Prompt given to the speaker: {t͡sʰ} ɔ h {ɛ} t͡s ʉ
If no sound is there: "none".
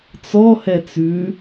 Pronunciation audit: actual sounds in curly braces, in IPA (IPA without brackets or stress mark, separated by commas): t͡s, ɛ